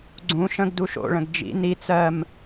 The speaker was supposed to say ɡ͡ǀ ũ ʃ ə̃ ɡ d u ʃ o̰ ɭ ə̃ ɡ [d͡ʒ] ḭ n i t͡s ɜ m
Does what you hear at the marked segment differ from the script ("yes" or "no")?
no